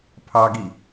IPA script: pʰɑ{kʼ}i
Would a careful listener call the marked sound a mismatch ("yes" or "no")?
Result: yes